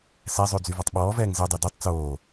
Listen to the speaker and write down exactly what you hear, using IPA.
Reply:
sɛzˤʉ d͡zyvɔtˤɓɔːvɛːŋ zɛdˤœ dʉtˤ t͡soː

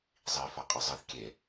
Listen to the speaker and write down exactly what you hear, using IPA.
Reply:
zˤifaqʼɨ zˤɨθ kʲe

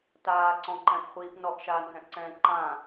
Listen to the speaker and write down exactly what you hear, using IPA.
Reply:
taːǀɔ̃ǃɛ̃pχʷiːp nɔʔʃaːnɦɛ̃ʔǀɛ̃ː ǃã

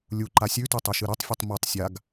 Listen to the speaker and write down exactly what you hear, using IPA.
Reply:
lʲuǃa sʲʉtʉtˤeʃɨ ɾɵtˤfʲʉtˤ motˤ sʲaɡ

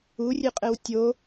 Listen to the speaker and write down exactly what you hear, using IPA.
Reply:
urʲɨqʼɘw tʲo

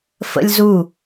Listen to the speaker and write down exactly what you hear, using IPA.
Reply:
fə̰lʲzu

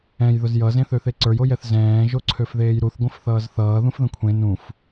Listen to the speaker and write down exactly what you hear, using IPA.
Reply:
ɛ̃j ðʊzjʌ zẽθøθeǀə˞j ojɛθzɛ̃ː ʒoǀʰøfðeːjɾuθ ɡʷə̃fθʌːzθʌː ðũfðə̃kʷʰẽ nũf

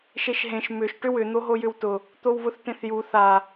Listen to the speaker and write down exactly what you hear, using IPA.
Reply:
ʃeʃɦẽʃ mʏʃ ʈʏwʏ n̪oɦojʏwtʊ | t̪owβʊθtẽθju θa

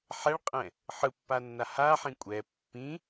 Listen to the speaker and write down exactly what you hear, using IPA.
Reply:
ħɛɭqʼɛ̃ | ħɯpːanːa haħĩ kʷʼɛ pːĩ

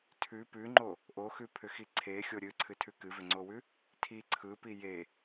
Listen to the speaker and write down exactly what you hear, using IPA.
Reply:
tʰʉ pʉŋ͡ǃo | ʔoxʉpʰʏxi ǀʰexʲo ɾʲɨǀʰɨtʰʉ kɨvʏŋ͡ǀowʉ | tʰi ǀʰɯpi je

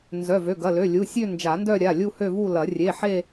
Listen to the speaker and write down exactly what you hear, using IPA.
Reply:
nzœ˩˧˩vø˩˧˩ ɡɐ˩˧˩lø˩˧˩lʲu˩˧˩ sʲø˥˧ nd͡ʒa˨˩˦ndœ˥˧ ɾʲa˩˧˩lʲu˥˧hø˥˧vu˥˧ lɐ˨˩˦ rʲe˩˧˩ ħe˥˧

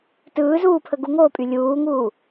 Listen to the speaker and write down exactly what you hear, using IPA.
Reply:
tɯːzuːpʰə ɡuŋoːpʼy lʲuːŋuː

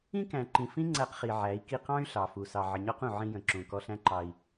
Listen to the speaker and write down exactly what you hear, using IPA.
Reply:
ĩ˦kæ̃˨ǃĩ˨fĩ˦ ŋ͡ǀæ˦qχi˨ ʕæ˨˦i̯ki˦ qɑ̃˦y̯ ɬɑ˨ fu˨ sɑ˨ʕə˨ɲɔ˦qũ˨ ʕĩ˦jə̃˨ ǁũ˨ kɔ˦ɬæ̃˦ǃɑ˨i̯

